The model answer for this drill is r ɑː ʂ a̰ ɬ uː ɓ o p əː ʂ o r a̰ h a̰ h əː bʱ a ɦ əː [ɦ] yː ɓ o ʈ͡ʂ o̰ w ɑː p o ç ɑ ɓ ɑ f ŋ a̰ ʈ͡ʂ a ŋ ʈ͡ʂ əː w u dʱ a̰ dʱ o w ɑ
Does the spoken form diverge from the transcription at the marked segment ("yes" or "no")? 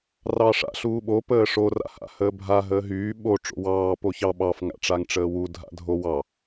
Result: no